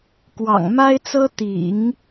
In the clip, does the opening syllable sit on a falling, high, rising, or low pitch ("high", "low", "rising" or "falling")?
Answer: low